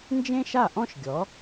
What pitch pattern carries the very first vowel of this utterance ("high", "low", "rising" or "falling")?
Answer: high